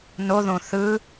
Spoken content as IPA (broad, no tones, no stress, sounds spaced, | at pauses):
n o ð õ θ ɯ